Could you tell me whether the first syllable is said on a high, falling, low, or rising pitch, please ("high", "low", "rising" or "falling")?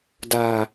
high